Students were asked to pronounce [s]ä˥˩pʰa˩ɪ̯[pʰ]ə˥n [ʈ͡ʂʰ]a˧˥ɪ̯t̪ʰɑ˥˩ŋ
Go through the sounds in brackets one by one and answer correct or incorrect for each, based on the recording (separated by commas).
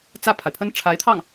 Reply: incorrect, correct, correct